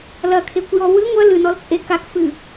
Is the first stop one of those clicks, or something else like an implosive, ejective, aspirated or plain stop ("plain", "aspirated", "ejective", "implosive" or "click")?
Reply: aspirated